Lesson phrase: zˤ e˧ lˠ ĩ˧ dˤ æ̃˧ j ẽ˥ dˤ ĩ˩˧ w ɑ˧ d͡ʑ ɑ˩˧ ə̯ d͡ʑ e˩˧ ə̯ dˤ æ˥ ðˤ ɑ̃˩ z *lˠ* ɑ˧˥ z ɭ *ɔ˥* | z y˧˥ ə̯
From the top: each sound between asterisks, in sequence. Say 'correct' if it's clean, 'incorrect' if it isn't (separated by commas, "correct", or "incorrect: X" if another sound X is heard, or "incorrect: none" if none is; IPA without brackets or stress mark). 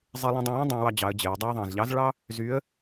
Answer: incorrect: ʎ, incorrect: ɑ˥